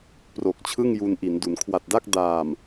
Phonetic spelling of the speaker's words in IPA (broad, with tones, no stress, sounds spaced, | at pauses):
p r o˨˩ k̚ t͡ɕʰ ɯ˥˩ ŋ j u˧ n ʔ i˩˦ n d u˩˦ n kʰ w a˨˩ t̚ d a˥˩ k̚ d aː˨˩ m